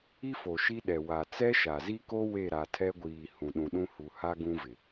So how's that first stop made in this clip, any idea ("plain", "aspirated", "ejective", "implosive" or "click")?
implosive